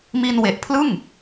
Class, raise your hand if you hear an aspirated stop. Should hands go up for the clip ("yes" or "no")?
yes